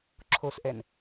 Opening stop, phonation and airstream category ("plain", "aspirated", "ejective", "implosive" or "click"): click